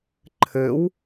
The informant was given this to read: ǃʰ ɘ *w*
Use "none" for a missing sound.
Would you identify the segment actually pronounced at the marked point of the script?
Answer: w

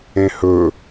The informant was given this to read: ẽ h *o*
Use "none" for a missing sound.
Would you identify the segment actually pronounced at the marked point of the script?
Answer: ɵ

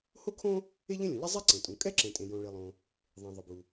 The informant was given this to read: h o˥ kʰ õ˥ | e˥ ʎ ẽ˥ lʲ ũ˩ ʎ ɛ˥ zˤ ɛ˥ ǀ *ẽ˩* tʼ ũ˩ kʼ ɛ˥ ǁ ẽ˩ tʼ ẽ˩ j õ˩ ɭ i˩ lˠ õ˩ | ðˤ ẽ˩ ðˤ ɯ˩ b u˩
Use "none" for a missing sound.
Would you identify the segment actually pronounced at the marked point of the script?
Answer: ẽ˩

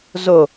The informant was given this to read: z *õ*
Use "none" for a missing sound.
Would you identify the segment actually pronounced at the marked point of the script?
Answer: o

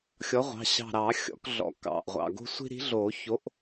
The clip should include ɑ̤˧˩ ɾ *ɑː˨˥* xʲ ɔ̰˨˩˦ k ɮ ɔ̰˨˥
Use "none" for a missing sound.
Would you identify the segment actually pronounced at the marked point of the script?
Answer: ɑː˨˩˦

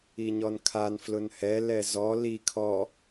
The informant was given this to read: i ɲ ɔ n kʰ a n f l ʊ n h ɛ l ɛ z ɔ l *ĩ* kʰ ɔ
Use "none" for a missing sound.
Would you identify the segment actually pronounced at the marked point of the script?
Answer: i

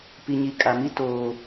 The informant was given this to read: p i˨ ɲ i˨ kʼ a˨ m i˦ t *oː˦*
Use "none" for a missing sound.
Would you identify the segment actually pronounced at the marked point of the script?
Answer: oː˨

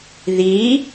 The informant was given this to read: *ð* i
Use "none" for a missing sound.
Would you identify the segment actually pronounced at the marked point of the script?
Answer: ð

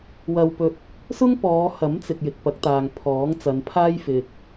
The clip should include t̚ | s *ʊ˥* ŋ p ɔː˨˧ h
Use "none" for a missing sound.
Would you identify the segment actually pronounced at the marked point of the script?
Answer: ʊ˥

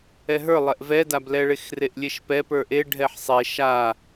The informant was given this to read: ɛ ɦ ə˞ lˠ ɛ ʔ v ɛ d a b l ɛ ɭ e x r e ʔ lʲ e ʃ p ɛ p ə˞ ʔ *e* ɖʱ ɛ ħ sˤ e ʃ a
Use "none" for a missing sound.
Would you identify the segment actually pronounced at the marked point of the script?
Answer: e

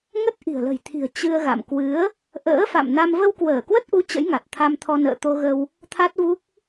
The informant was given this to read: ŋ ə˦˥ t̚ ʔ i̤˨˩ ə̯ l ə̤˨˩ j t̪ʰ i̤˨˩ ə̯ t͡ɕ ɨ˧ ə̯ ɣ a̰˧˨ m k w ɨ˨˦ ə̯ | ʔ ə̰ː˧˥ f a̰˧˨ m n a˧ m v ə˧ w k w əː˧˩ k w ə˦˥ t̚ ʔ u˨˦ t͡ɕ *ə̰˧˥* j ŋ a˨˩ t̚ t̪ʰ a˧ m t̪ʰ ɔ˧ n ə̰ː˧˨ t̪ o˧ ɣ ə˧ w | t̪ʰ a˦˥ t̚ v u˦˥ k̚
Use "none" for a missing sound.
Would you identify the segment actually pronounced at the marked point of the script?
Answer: ə̰˧˥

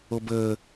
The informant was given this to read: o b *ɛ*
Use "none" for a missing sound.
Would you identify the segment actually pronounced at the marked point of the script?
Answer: ə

